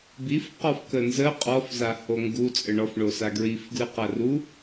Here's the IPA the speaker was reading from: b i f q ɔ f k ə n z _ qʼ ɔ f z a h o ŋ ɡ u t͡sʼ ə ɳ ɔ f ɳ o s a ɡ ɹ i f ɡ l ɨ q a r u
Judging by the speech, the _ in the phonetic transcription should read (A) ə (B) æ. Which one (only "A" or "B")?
A